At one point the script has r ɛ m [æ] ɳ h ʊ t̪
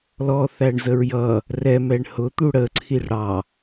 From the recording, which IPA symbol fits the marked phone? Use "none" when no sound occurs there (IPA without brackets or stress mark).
ɛ